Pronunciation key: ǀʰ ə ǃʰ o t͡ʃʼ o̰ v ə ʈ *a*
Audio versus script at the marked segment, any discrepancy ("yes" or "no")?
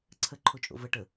yes